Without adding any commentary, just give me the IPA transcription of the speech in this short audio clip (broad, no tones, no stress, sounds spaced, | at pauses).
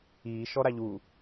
iː ʃ ɔ ɾ a ʎ u